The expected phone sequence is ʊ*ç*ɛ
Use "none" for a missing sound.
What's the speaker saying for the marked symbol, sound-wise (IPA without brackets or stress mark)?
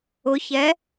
ç